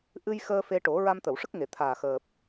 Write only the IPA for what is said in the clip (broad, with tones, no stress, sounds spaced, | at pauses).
ʔ ɨ˧ j x əː˧ f e˧ ʈ o˨˩˦ ɹ a˧ m t̪ ə˨˩˨ w ʂ ə˦˥ k̚ ŋ e˨˩˨ t̪ʰ aː˨˩ x əː˨˩ p̚